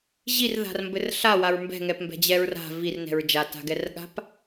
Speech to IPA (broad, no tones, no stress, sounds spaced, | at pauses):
ʑ i r ð a̤ r m b ɘ r ɬ a w a ɹ m b ɛ̤ ŋ ɛ p m b ɛ̤ d͡ʑ ɛ ɹ r a̤ v i r n ɛ̤ ɹ d͡ʒ a t a̤ ɡ ɛ r ɠ a̤ p